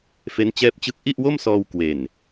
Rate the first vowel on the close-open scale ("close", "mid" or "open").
mid